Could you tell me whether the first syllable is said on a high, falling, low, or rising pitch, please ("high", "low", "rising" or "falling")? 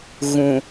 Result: low